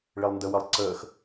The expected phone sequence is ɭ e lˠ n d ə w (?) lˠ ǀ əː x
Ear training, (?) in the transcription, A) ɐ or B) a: A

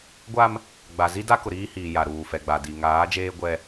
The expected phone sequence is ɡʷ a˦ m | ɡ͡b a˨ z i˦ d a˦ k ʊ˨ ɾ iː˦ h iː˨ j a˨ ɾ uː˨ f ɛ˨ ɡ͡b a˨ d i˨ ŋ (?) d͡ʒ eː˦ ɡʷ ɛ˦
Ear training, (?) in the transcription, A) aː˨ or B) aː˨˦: B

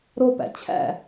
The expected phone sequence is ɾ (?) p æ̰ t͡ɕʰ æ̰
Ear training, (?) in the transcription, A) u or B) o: B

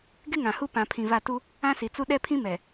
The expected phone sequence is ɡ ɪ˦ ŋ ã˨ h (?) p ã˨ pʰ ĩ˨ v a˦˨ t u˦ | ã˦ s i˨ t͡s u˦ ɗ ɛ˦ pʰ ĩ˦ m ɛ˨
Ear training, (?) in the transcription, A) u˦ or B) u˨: A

